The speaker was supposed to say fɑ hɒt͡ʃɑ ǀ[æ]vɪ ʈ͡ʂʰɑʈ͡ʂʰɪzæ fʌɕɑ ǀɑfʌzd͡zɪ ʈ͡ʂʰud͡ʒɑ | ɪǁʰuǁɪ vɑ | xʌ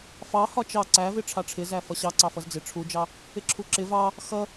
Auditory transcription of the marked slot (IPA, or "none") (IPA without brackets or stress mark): æ